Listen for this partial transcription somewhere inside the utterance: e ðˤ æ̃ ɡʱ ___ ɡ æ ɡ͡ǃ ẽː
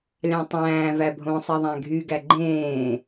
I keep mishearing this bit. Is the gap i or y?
y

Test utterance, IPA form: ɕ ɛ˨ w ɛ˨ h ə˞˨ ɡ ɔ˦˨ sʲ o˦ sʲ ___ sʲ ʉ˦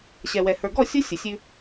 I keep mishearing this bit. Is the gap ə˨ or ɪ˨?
ə˨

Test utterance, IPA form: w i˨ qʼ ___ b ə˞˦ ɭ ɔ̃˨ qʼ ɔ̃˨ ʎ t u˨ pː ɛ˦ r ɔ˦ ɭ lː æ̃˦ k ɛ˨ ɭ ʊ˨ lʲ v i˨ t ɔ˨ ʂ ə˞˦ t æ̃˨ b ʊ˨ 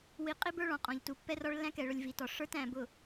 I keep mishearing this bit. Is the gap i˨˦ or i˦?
i˦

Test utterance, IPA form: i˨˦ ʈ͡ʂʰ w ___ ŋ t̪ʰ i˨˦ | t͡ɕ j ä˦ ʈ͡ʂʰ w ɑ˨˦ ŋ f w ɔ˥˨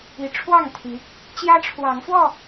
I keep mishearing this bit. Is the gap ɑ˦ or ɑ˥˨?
ɑ˥˨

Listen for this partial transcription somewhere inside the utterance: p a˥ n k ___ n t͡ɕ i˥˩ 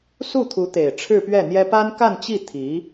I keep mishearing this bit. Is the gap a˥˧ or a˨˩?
a˥˧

